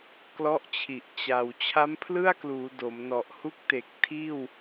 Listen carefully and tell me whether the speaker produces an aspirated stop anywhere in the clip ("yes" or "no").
yes